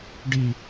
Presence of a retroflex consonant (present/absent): present